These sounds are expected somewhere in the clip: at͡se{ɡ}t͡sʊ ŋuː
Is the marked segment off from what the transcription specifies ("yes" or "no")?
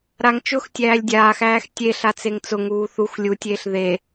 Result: yes